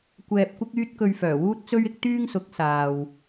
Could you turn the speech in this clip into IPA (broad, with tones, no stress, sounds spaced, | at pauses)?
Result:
kʷ ɛː˨ p̚ kʷ ɪ˥ k̚ yː˥ t̚ k ɵ˧ ɥ f œː˨˩ w uː˥ t̚ t͡s ɵ˥ ɥ ɪ˥ k̚ t̪ yː˥ ŋ s ʊ˨˥ k̚ s aː˨ w